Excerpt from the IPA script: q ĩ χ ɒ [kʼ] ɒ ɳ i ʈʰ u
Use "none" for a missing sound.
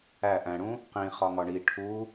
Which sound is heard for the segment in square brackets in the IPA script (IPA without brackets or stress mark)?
ŋ